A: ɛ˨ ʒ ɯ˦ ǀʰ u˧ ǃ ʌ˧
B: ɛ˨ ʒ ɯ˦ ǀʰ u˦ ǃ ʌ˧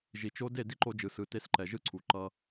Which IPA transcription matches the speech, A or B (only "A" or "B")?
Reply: A